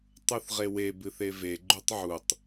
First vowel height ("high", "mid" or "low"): high